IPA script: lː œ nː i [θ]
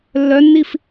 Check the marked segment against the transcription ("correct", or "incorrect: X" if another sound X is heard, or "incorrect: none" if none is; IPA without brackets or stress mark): incorrect: f